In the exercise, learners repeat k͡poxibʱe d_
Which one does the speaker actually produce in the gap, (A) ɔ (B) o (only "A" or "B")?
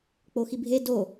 B